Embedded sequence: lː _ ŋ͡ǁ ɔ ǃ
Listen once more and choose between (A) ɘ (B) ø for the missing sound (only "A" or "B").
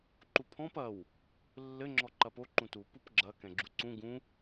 A